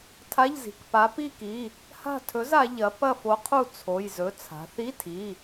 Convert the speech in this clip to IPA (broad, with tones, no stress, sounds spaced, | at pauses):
tʰ a˧˥˧ ʎ z i̤˩˧˩ k p a˨˥ p i˦˨ k i˩˧˩ | h a̤˦˨ tʰ ɵ˨˥ z a˩˧ ʎ ɐ˨˥ p ɐ˦˨ f o˨˥ qʰ u˦˨ t͡sʰ o˩˧˩ j z ɵ˩˧˩ t͡sʰ a̤˩˧ θ i˧˥˧ tʰ i˩˧˩